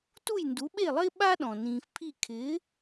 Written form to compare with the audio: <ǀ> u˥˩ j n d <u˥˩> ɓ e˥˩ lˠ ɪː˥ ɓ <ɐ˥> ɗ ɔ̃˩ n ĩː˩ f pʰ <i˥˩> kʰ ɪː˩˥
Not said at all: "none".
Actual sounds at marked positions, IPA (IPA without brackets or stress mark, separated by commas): t, u˩˥, a˥, i˥˩